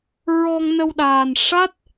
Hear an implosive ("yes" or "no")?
yes